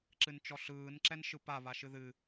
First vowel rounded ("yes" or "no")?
no